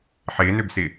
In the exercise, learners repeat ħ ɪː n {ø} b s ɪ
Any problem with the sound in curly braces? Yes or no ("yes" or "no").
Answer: no